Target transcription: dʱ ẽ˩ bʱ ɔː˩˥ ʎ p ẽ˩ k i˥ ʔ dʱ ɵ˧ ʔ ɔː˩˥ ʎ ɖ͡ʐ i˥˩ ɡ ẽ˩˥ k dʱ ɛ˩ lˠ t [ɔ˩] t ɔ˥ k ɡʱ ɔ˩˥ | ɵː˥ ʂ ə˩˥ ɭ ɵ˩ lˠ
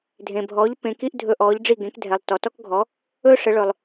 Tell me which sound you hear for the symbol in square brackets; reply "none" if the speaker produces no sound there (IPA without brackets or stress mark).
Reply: ɔ˩